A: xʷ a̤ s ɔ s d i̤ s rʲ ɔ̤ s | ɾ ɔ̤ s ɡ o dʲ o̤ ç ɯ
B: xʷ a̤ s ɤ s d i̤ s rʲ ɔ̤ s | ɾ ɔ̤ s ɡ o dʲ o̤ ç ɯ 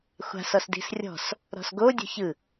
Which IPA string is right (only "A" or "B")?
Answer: A